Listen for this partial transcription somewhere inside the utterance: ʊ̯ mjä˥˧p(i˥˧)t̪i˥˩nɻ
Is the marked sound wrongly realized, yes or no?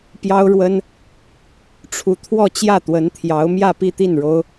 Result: no